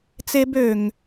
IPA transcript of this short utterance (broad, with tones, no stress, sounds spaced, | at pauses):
t͡s e˦ b ø˨ ŋ